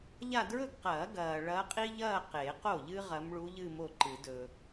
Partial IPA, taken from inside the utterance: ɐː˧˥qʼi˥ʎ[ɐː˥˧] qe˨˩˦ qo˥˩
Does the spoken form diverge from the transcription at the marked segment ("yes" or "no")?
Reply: no